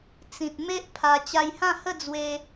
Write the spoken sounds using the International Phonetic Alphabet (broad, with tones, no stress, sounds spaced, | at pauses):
t͡s ĩ˨ t̚ m e˦ ʔ pʰ a˧ t͡ɕ a˧ j h ã˥˧ h ə˥˧ d͡z w e˦